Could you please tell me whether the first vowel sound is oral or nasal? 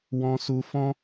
nasal